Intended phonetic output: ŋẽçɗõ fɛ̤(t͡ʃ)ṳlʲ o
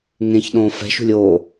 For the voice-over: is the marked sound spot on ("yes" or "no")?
no